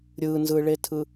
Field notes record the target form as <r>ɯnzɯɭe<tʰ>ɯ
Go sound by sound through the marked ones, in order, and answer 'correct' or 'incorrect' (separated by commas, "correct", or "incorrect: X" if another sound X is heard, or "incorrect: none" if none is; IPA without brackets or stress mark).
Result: incorrect: ɾʲ, correct